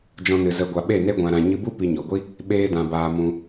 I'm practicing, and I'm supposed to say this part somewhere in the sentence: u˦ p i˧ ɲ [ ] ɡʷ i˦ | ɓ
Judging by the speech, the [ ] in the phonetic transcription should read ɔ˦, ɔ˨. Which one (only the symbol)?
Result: ɔ˨